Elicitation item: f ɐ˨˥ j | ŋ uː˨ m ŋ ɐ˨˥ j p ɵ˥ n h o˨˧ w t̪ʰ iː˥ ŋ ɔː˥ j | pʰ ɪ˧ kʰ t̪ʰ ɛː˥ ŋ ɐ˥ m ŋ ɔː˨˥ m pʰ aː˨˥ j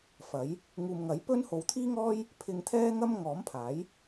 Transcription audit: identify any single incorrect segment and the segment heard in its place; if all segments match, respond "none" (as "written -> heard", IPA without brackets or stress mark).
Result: kʰ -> ŋ